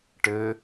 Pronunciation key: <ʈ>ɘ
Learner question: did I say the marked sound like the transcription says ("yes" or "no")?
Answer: yes